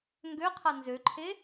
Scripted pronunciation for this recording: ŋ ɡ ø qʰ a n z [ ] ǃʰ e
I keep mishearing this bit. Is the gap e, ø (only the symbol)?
ø